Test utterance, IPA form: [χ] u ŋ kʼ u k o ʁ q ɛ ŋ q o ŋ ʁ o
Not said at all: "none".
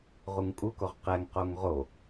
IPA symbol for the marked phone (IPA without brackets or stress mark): ʁ